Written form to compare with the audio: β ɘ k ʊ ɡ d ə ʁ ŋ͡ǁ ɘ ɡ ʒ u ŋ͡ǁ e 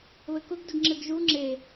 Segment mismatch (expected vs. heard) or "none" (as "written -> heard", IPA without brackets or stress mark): ʁ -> ɡ